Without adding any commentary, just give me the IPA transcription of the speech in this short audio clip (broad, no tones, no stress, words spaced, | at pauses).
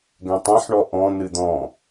ɡɛ̃tˤɛ̃ħɳɔ ʔɔ̃ n̪ɨd̪ɔ̃